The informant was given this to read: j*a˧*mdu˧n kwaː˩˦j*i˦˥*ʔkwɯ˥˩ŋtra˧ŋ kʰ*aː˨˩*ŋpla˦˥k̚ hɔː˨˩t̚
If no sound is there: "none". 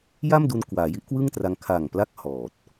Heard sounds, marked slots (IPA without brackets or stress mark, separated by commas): a˥˩, i˦˥, aː˨˩